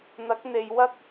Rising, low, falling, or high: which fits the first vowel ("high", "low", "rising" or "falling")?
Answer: rising